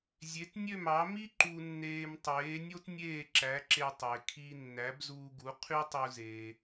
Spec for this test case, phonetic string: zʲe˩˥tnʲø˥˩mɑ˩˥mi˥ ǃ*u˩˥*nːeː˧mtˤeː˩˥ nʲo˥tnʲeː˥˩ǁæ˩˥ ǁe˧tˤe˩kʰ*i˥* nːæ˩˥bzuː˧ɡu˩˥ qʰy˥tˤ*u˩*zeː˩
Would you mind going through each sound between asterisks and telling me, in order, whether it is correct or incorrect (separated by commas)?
incorrect, incorrect, incorrect